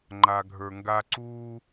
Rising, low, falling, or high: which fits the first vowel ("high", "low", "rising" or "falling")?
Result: low